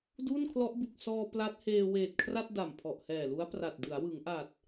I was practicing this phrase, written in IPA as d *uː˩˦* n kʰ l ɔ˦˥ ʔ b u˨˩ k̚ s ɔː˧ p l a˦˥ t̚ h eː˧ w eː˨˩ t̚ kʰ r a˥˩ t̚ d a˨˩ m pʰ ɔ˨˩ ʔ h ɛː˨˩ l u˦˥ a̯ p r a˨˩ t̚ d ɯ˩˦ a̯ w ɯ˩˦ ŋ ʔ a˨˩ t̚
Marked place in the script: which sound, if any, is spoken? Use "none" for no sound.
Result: uː˥˩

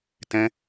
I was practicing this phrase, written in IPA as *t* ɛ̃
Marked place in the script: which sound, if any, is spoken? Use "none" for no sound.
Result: t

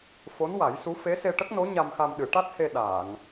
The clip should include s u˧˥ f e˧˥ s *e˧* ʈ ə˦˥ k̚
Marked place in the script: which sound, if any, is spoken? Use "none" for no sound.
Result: e˧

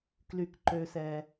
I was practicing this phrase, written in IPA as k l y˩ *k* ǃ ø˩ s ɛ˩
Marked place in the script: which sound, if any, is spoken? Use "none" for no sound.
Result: k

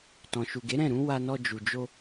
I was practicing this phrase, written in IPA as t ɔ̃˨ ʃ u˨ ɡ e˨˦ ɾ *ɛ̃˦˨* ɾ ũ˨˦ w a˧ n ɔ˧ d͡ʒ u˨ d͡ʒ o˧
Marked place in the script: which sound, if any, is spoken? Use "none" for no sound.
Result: ɛ̃˦˨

